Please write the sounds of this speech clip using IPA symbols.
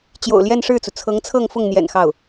t͡ɕ j o̰˨˩ ʊ̯ l j ɛ˥˧ n ʂ ɻ̩˥˩ t͡s u˩ t͡sʰ ɤ˧˥ ŋ t͡sʰ ɤ˥˧ ŋ f ʊ˥˩ ŋ n̪ j ɛ̰˨˩ n x ɑ˥˩ ʊ̯

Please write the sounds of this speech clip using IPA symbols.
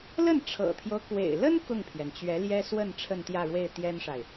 l ə˥˩ n ʈ͡ʂʰ ɤ̰˨˩ t̪ʰ j o˦ ʊ̯ k w ḛ˨˩ ɪ̯ l ə˥ n k ʊ˥˩ ŋ pʰ j ɛ˩ n t͡ɕ ɥ ɛ˧˥ l j ɛ˥ s w ə˥˧ n ʈ͡ʂʰ ə˥˧ n t̪ j ä˥˧ ɻ w e˥˩ ɪ̯ t̪ j ɛ˥ n ʂ a˨ ɪ̯

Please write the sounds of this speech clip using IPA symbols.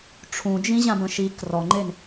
ʈ͡ʂʰ ũ d͡ʒ ĩ ʑ ã b ə̃ ʃ i k r ɔ ŋ͡ǃ e n

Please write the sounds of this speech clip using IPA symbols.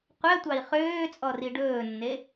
qʷ ɛ tʷ ɑ i̯ χ øː t͡sʼ ɔ r i ɖ ɵː nː e

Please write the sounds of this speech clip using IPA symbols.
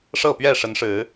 ʂ ɤ˥˨ p ɥ ɛ˥˨ ʂ ə˨˦ n ʂ ɻ̩˨˦

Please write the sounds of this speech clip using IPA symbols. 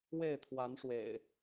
w e˥˨ ɪ̯ t̪ʰ w a˨˦ n ʂ w ḛ˨˩ ɪ̯

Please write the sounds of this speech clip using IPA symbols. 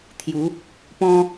t̪ʰ j u˨˦ | p ɔ̃˦

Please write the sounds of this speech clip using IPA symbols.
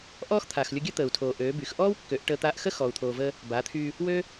ʔ ɔː˦ x t̪ʰ aː˨ x lʲ o˧ ɡʲ əː˦ t̪ əː˨ u̯ tʰ oː˨ ʔ øː˨˦ b y˨ x ʔ ɔː˦ w kː ø˨˦ ʔ ʈ əː˧ t̪ aː˧ ʔ x ə˦ x ɔː˨ u̯ t̪ʰ oː˨ v əː˧ | b a˨˦ t̪ʰ y˧ | w ø˦

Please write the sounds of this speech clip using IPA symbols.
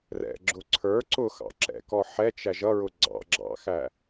r ɛ̰ ɡ͡ǁ ʊ ǀʰ ə˞ ǀ ʊ x ɑ̰ ǁ ɛ̰ k ɔ ħ ɛ t͡ʃ æ ʒ ʌ ɹ ʊ ɡ͡ǀ ɑ̰ ɡ͡ǁ ɑ̰ x æ

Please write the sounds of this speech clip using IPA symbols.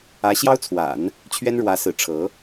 ä˧˥ ɕ j ɑ˥ ʊ̯ t͡sʰ w a̰˨˩˦ n | t͡ɕʰ ɥ ɛ˥ n ɻ w ä˧˥ s ɹ̩˧˥ ʈ͡ʂʰ ɤ˧˥

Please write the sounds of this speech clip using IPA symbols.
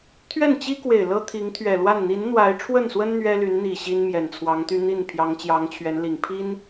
t̪ʰ ɥ ɛ˥˩ n t͡ɕ i˥ k w e˨˩ ɪ̯ l ɤ˥ t̪ʰ i˧˥ ŋ t̪ʰ ɥ ɛ˨˩ l w a˥˩ n n̪ i˧˥ n n̪ w a˧˥ ɪ̯ ʈ͡ʂʰ w ə˥˩ n s w ə˥ n n̪ ɥ ɛ˥ l y˧˥ n n̪ i˨˩ ɕ i˥ n m j ɛ˨˩ n t͡sʰ w ɑ˧˥ ŋ t̪ y˥ n̪ i˥˩ n pʰ j ɑ˧˥ ŋ t͡ɕ j ɑ˧˥ ŋ t͡ɕʰ ɥ ɛ˧˥ n l i˨˩ ŋ pʰ i˥ n

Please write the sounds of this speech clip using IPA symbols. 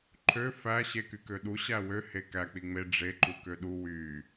ǃʰ ø f æ ɕ e k y k ø ɗ u ɕ æ w ø h e k æ k͡p i ŋ͡m e ɖ͡ʐ e ǃ u k ø ɗ u w y

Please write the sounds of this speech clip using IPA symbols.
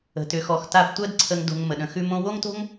ə̤˧ t ʏ˧ x ɔ˧ x t a˦ b tʷ ɜ˦ d ǀʰ ə˧ ŋ d o̤˧ ŋ m ə˨ ɗ ə̃˧ x ʉ˦ m õ˧ w o˦ ŋ t o̤˦ ŋ

